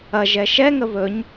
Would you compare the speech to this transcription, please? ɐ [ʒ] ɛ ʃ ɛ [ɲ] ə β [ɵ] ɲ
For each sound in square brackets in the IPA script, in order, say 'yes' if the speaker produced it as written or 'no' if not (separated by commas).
yes, no, yes